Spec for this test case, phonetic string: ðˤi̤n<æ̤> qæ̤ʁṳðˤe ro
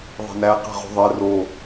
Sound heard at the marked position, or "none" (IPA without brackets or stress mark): æ